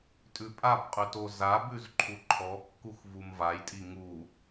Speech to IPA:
tʼ ʉ pʼ a b qʼ ʉ t o z a b ʉ z ǃʰ u ǃʰ ɔ kː u x v u m v a j tʼ i ŋ u

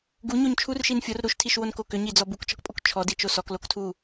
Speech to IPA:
ɡ u ɲ o ɲ t͡ʃʰ u r ʃ i n fʲ o r ɾ u ʃ tʰ i ʃ w o n k o k ʏ ɲ i d͡z ɔ b u k t͡ʃ ɔ k pʼ o k t͡ʃʰ ɔ d i t͡ʃ o s ɔ k l o k tʰ u

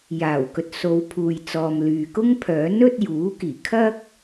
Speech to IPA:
j aː˨˩ w k ɵ˨ t̚ s o˨ w pʰ uː˨ j t͡s ɔː˨ m l yː˨ k ʊ˥ ŋ pʰ œː˨˥ n ɵ˥ t̚ j uː˨˥ k iː˨˩ kʰ ɐ˥ k̚

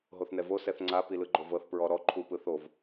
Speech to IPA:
ɦ o θ n ɛ v o s ɛ θ ŋ͡ǀ a p i l ɯ ɡ͡ǃ o v ɤ θ p ɹ ɔ ɾ ɔ ǃʰ u p ɯ θ o v

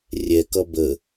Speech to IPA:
rʲ ɛ k ʌ b ə

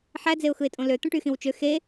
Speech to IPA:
ħ æ d͡z e ʊ̯ x ɯ ɪ̯ tʼ õ l ø t̪ õ ʈ y x ĩ w t͡ʃ ø x e

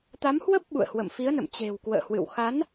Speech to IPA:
t̪ a˨˦ m h w ə˦˥ p̚ ɓ ṵ˧˨ ə̯ h w ə̰˧˨ m f i˨˦ ə̯ n ə̰˧˨ m t͡ɕ e̤˨˩ w k w ə̰ː˧˨ h w ɨ̰˧˨ w x a˨˦ n

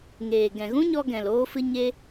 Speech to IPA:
ŋ eː˨ ɡ ɛ̃˨ ɣ ũ˦ ɲ ɔ˧ ɡ ɛ̃˨ l oː˦ f ɨ˦ ɲ e˦

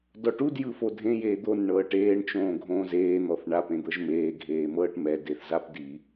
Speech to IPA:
d ɔ ʈ u d j ɯ f o dʱ ẽ j eː d̪ o n ɳ ɤː ʈ eː ɳ t͡ʃ õː ɡʱ õː z eː n̪ ɔ θ ɳ a p ẽ d̪ ɤ ʒ m eː ɡʱ eː m ɤː ʈ m ɛ d e θ z a p d i

